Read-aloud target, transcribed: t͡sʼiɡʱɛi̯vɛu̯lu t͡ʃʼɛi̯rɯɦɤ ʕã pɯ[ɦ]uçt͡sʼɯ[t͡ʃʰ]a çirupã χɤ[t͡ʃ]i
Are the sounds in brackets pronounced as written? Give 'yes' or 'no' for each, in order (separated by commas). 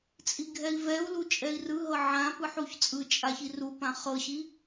no, no, no